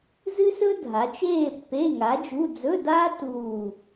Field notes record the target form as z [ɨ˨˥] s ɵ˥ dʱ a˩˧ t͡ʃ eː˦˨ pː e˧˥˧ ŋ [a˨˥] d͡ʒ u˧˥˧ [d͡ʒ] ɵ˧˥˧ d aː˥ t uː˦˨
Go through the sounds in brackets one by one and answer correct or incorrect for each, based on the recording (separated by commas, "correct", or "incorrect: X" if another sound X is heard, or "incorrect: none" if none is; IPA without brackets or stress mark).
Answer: incorrect: ɨ˥, correct, incorrect: d͡z